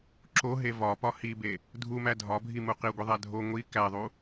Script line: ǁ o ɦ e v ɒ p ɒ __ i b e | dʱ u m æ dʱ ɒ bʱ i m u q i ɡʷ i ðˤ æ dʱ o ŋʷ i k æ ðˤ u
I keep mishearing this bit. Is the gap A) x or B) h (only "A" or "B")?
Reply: B